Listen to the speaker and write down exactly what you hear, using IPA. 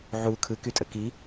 ʕ u kʰ ɯ k y tʼ ə k i

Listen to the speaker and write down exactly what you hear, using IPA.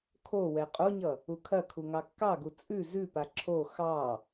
kʰ o w ɛ qʼ o ɲ ʌ | u kʰ ɐ kʰ u ŋ ɑ kː ɑ ɡ u t͡sʼ ʉ z ʉ p a ǁʰ o x ɑ

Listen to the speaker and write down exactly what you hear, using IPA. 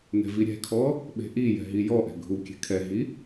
n ɛ̤ v i ɾʲ ɛ̤ kʰ ɔ | ɓ e̤ ʔ i j ɛ̤ ɦ i j ɔ ʔ ɛ̤ ɡʱ u kʲ ɛ̤ kʰ ɛ ɦ i

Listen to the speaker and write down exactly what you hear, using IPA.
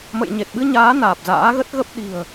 m ə̰˧˨ j ɲ e˨˩ t̚ ɓ ɨ˧ ɲ aː˨˦ n aː˨˩ p̚ z a̰ː˧˥ ɣ ə˦˥ t̚ ɣ ə˦˥ p̚ ɗ i̤˨˩ ə̯

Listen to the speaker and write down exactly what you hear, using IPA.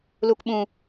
l u˨ k ɓ ũ˨

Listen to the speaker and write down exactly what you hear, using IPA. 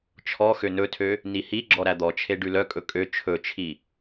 t͡ʃʰ ɔ x ø n ɵ tʰ ø | n i h i ɡ͡ǁ ɔ ɾ æ d̪ ɔ t͡ʃʰ e ɖ ʉ l œ kʼ ɵ kʼ ø t͡ʃʰ ɵ t͡ʃʰ i

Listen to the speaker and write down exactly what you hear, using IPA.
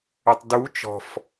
ø tˤ d u t͡ʃ ɔ̤ f

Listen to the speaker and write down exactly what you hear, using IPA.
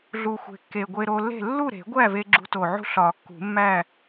ɮ u˨˩ xʷ e̤˨˩ kː e˨˩ ɡʷ e˧ ɾ o˧ lː e̤˥˨ lː u˥˨ ɾ e̤˨˩˦ ɡʷ æ˥˨ v e˧ ɡ͡ǁ ṳ˧ t o˨˩ ʕ ṳ˥˨ ɬ ɒ˨˩˦ kː ṳ˨˩˦ mː æ˥˨

